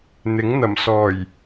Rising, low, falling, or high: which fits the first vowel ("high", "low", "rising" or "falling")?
rising